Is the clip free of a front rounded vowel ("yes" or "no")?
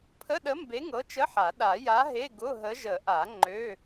no